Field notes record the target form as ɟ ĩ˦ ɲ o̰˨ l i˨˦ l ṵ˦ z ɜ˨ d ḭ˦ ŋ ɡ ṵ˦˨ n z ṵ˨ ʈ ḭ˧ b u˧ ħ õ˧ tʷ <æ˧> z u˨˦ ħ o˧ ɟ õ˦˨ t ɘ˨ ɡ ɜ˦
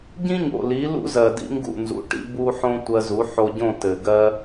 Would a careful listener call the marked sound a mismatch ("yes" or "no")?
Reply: yes